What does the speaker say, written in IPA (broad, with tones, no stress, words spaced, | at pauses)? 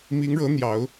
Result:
mi˧˥ŋɻɤ˧˥n̪jɑ˨˩˦ʊ̯